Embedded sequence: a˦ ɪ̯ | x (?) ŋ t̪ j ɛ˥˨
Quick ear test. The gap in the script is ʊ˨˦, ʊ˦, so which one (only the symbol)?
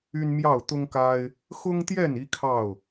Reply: ʊ˦